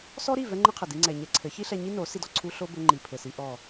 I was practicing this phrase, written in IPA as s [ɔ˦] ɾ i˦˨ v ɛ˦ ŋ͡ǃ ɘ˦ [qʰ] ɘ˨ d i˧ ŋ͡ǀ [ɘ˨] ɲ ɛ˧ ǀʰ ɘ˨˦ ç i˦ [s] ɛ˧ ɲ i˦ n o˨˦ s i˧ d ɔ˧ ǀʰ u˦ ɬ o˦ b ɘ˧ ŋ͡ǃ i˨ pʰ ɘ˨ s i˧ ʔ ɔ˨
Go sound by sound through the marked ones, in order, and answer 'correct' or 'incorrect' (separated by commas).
correct, correct, incorrect, incorrect